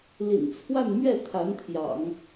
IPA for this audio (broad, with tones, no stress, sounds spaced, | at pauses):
l ḭ˨˩ n t͡sʰ w a˥˧ n m ɥ ɛ˥˩ t̪ʰ a˧˥ n t̪ʰ j ɑ̰˨˩˦ ŋ